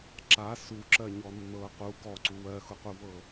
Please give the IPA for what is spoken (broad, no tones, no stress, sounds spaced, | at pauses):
ǁ a s u ǁ ɜ ɲ ɔ nː ɤ q u ɡ ɔ ǀ u w ɜ x ʊ q u v ɤ